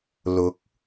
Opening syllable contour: rising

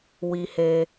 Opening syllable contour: low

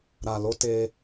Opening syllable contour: low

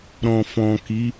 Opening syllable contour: low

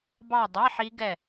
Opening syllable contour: falling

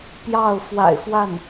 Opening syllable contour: falling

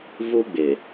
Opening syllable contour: high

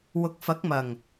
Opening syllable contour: low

